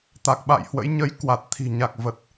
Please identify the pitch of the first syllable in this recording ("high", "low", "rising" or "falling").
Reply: low